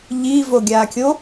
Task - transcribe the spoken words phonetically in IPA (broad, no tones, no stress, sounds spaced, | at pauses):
ʎ i v o ɡʲ aː kʲ o